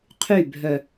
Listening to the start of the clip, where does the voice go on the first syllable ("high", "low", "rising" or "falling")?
falling